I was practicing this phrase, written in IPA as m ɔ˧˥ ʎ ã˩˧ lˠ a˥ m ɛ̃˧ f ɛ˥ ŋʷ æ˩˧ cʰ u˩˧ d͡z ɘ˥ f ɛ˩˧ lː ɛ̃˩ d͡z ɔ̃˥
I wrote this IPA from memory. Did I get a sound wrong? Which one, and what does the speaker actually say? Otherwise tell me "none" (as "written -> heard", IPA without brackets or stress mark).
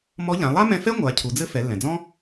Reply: æ˩˧ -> a˩˧